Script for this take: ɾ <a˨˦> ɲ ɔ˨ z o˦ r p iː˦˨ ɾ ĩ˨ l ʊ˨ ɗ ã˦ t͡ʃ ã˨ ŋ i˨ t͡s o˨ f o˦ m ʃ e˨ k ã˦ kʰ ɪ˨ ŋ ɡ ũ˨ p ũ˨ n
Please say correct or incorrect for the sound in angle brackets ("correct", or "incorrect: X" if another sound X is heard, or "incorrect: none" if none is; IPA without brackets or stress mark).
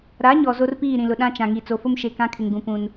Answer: correct